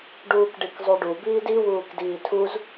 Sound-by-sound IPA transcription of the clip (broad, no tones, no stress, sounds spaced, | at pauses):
ɖ uː k ɖ i k zˤ u ɖ u b iː d i w uː k d iː tʰ u z